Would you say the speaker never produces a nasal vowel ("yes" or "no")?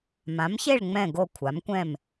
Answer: no